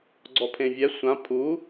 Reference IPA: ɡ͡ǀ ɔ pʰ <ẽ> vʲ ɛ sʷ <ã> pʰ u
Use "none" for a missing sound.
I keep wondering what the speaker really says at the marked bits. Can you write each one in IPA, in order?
ẽ, ã

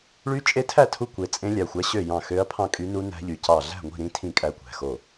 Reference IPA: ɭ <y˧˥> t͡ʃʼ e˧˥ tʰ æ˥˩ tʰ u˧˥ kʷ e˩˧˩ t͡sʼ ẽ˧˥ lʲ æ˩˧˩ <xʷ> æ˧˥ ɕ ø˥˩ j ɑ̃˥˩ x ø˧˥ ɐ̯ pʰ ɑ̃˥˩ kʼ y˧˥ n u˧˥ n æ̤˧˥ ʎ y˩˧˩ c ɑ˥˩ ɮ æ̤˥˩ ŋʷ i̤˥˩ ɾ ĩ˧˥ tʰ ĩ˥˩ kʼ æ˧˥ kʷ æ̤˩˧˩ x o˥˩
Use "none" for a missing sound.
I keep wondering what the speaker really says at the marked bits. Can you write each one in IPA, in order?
y˧˥, xʷ

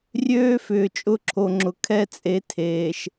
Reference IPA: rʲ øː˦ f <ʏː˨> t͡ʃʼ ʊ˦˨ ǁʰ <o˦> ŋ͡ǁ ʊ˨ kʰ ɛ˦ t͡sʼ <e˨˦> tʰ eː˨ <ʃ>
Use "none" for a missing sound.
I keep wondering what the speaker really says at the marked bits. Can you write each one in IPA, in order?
ʏː˨, o˨, e˨˦, ʃ

